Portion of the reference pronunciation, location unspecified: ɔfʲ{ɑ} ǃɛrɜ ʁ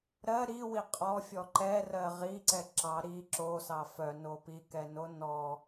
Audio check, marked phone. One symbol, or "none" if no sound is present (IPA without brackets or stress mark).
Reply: ɔ